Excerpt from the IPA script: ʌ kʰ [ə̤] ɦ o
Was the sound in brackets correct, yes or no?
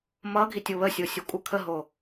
no